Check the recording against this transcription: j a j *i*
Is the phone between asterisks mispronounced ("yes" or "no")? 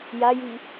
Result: no